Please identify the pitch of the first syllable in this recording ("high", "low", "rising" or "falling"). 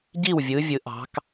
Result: falling